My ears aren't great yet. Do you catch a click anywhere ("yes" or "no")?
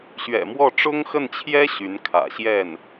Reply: no